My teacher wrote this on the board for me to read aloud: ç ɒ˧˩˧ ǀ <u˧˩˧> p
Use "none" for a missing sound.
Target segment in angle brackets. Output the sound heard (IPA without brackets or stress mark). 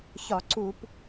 u˧˩˧